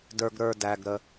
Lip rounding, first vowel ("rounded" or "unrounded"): unrounded